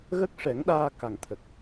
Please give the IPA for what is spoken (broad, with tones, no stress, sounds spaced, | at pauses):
ɣ ə˦˥ k̚ ʂ ɛ˨˩˦ ŋ ɗ aː˧ k a˨˩ ŋ t̪ʰ ə˨˩ k̚